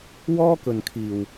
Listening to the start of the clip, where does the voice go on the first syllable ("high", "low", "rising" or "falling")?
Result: high